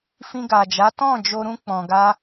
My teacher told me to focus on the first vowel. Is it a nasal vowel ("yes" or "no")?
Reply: yes